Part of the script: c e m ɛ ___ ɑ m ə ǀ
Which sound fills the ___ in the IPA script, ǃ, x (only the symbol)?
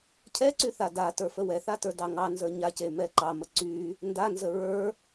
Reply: ǃ